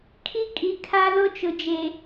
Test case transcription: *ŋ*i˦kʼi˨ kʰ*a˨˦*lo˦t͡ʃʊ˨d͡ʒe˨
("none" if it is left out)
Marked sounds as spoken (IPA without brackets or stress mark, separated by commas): kʰ, a˦